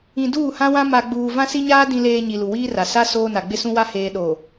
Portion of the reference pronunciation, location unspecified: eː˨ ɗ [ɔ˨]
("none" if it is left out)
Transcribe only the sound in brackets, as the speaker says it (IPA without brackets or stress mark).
o˨